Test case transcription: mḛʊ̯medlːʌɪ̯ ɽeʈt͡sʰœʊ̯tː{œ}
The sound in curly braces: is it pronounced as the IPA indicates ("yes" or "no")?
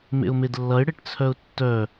yes